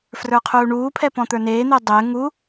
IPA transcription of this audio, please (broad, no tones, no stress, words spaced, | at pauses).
frə˞qʰuːɳuːpʰɛ pɔ̃t̪ə˞neːn̪e dˤɘː ŋu